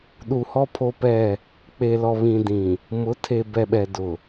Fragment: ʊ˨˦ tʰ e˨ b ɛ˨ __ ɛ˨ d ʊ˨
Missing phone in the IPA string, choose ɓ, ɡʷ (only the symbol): ɓ